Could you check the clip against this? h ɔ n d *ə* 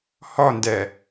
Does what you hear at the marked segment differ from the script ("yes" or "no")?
yes